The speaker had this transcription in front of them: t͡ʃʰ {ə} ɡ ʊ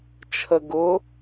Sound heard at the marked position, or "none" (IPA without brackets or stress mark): ə